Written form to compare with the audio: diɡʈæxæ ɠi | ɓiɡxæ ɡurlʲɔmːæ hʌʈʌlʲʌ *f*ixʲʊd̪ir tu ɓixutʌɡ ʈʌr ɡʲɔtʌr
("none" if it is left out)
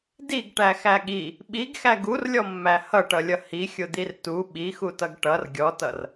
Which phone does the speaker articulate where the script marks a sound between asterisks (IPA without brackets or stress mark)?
h